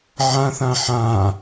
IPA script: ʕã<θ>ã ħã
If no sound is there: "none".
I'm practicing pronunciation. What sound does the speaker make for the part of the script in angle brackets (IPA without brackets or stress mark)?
θ